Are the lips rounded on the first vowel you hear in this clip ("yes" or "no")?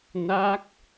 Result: no